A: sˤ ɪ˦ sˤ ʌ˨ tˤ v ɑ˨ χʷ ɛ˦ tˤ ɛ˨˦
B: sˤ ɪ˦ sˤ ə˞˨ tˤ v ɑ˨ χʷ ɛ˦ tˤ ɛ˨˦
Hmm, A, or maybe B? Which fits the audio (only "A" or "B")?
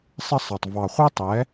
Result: A